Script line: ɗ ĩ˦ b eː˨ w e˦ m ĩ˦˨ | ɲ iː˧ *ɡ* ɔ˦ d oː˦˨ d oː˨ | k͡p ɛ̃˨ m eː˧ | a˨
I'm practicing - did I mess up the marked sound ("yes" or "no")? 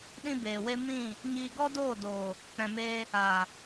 no